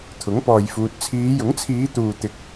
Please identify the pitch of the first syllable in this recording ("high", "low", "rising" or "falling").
rising